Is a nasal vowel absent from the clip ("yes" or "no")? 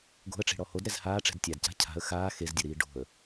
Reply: yes